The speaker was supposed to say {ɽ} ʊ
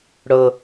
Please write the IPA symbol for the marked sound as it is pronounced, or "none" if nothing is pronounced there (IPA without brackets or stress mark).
ɽ